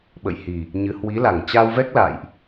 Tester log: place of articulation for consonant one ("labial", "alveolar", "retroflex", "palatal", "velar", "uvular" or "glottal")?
labial